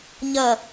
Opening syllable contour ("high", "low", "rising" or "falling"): falling